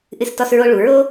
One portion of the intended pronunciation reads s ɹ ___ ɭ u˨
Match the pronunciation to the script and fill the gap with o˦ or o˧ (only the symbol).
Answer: o˧